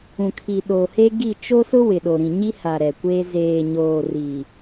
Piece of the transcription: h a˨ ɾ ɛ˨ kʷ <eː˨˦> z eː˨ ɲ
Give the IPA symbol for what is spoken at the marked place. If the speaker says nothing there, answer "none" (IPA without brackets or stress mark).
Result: eː˦